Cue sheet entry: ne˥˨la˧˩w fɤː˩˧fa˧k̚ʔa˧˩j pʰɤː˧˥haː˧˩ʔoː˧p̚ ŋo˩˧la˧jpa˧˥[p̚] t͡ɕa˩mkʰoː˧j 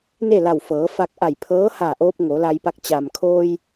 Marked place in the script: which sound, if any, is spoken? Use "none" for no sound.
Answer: k̚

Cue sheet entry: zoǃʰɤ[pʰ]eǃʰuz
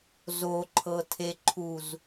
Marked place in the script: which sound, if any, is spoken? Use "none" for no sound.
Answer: tʰ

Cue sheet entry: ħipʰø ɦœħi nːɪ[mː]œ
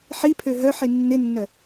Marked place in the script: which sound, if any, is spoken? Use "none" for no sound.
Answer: nː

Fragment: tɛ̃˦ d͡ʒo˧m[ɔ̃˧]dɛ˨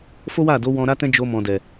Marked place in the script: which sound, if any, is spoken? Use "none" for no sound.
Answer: ɔ̃˨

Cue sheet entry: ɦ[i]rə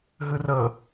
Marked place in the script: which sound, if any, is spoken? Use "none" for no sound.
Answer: ɨ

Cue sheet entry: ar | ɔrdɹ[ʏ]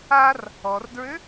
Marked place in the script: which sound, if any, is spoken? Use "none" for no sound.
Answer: ʏ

